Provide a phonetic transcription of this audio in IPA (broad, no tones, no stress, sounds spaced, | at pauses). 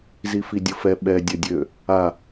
z i f i dʲ ʊ f ɛ ɓ ɛ dʲ œ dʲ ø | a